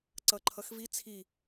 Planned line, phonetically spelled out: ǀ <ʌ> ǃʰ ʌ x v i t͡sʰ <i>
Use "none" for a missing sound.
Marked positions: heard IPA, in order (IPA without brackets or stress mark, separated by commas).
ʌ, i